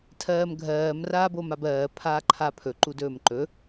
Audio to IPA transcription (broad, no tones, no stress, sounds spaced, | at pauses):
tʰ ɜː m ɡʱ ɜː m r aː b o m a b ɜː pʰ aː ǃʰ a pʰ ɵ ǃ u d ɵː m ǃ ɵ